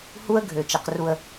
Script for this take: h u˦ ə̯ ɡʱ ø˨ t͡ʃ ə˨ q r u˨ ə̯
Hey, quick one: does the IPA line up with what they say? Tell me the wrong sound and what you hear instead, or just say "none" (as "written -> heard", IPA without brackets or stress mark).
none